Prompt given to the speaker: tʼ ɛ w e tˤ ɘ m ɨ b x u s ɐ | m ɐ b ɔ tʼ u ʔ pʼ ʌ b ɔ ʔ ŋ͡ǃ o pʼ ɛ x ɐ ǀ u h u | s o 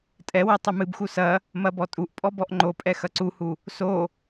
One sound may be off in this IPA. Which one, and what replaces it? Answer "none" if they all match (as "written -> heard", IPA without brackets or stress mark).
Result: ʌ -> ɔ